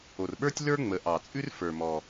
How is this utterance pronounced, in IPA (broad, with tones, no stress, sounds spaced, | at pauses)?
o˩ r ɓ ə˞˥ tʲ l ə˞˥ ŋ͡m ə˩˧ ʔ ɑ˩ t͡sʼ ʉ˥ r f ə˞˩ m ɔ˩